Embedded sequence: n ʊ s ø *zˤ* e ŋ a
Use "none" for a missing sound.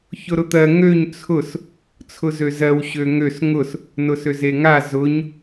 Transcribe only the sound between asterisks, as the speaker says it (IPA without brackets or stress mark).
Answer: z